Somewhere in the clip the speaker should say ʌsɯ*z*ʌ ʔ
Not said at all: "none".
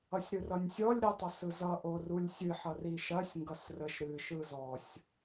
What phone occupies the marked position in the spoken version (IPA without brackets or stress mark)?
z